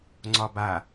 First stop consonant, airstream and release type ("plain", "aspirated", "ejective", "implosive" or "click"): click